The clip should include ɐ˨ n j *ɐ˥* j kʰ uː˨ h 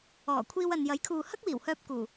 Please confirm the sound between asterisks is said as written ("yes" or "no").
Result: no